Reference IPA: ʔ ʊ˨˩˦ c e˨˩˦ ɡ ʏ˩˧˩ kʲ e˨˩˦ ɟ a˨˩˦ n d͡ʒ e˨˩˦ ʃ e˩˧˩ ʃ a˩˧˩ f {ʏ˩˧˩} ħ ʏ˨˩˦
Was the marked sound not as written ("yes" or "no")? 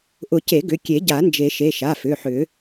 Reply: no